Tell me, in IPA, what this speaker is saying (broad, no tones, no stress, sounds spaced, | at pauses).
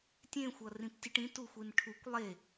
tʲ ẽ xʷ ʌ r ĩ p tʲ ɯ ʈ ĩ t u xʷ i n ʈʰ u kʷ lˠ e